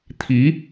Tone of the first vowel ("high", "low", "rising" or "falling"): rising